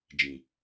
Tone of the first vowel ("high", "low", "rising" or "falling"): low